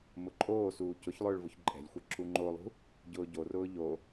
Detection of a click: present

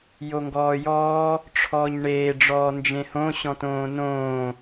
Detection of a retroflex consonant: present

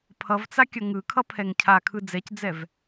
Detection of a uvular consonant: absent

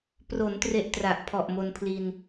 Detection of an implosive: absent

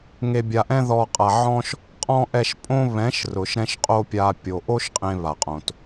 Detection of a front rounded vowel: absent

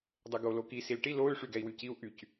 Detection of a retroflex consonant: present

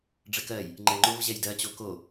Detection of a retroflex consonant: present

